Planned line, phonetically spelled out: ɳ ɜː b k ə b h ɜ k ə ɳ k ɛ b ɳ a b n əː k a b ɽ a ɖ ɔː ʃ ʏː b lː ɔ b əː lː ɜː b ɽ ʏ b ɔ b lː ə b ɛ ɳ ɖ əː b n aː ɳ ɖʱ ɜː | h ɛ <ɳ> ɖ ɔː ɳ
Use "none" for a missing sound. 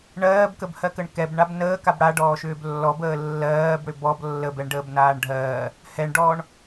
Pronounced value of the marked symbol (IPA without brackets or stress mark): ɳ